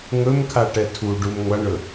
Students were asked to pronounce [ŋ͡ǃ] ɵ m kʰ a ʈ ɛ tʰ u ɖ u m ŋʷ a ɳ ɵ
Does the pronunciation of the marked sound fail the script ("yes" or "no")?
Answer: yes